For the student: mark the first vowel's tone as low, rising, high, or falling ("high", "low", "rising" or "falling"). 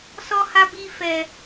high